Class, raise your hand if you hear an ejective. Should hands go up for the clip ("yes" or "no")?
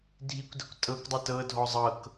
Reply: yes